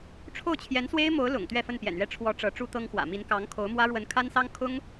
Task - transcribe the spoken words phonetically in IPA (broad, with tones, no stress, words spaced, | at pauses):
ʈ͡ʂʰo˥˩ʊ̯t͡ɕʰjɛ˧˥nswe˥ɪ̯mo˧˥ʊ̯ lʊ̰˨˩ŋ t̪ɥɛ˥˧fə˥˩npjɛ̰˨˩nɥɛ˥˩ ʈ͡ʂʰwɔ˧˥ ʈ͡ʂɤ˧˥ʈ͡ʂu˥t̪ɤ˥ŋxwä̰˨˩ mi˧˥nkɑ˧˥ŋkʰo˧˥ʊ̯mwä˥ ɻwə˧˥nkʰa˥nsɑ˥ŋ kʰʊ˥ŋ